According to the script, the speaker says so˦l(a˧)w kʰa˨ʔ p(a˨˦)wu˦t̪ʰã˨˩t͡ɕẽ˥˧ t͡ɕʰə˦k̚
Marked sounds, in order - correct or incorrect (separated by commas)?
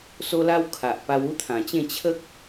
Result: incorrect, incorrect